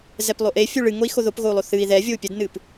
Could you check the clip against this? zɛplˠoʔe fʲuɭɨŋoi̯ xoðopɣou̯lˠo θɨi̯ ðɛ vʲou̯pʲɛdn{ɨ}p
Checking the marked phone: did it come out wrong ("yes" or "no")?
no